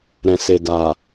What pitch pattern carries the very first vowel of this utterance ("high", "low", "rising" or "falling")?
low